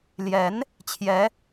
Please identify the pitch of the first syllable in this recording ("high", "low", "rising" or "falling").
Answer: rising